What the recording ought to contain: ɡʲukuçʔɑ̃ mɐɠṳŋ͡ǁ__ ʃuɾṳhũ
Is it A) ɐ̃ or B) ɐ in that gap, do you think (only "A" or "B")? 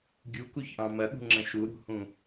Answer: A